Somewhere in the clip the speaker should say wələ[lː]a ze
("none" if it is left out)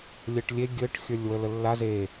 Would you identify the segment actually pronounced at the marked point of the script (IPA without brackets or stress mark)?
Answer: lː